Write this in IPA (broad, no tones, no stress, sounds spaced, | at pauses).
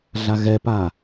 ɮ a ɣ ɛ p a